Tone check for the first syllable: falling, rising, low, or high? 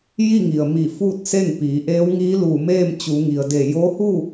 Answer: falling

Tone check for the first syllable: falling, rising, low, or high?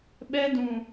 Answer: high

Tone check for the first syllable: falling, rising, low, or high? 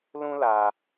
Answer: high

